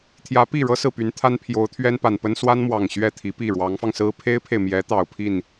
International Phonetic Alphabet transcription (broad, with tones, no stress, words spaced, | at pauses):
t̪ʰjä˧˥pi˥˩ɻɤ˥ sɹ̩˥˩py˧˥nt̪ʰa˥n pʰjo˧˥ʊ̯t̪ʰɥɛ˥npa˨˩npə˥n swa˥nmwɑ˨˩ŋ ɕɥɛ˥˩t̪ʰi˧˥pi˥˩ ɻwɑ˧˥ŋfɑ˧ŋsɹ̩˥ pʰe˥ɪ̯pʰe˨ɪ̯mjɛ˧˥ t̪ɑ˨˩ʊ̯pʰi˥˩n